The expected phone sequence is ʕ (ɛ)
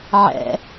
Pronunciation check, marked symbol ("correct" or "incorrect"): incorrect